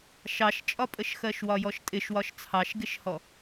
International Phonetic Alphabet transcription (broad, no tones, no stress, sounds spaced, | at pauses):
ʃ ɑ ʃ t͡ʃʼ ɒ pʼ ə ʃ x ɜ ʃ w ɒ j ɔ ʃ tʼ ɪ ʃ w ɒ ʃ t͡sʰ ɑ ʃ ɡ ɪ ʃ h ɔ